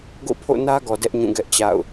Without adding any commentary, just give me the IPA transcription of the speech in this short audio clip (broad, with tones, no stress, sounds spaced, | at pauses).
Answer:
ɡ o̰˦˨ pʰ o̰˦˨ n ä˦ ɡ ɔ˨ d ɛ˦ ʔ ɲ ũ˦˨ ɡ ɛ˦ ʔ t͡ɕ a̰˦˨ ʊ̯